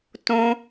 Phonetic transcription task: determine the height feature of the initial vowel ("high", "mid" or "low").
mid